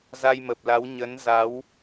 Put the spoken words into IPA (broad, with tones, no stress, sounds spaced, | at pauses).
z a˧ j m ə˨˩ p̚ l a˨˦ w ɲ ə˨˦ n z a˨˦ w